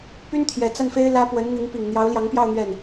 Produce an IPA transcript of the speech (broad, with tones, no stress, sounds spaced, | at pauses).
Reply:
p y˥ n t̪ʰ j ɛ˨˩ t͡s a˥˩ n f e˥ ɪ̯ l ä˥ p w ə˧˥ n n̪ i˧˥ ŋ p i˨˩ ŋ n̪ j ɑ˧˥ ʊ̯ l j ɑ˧˥ ŋ p j ɑ˥˧ ʊ̯ n̪ ɥ ɛ˥˩ n